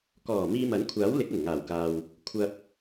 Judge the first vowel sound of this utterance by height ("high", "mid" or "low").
mid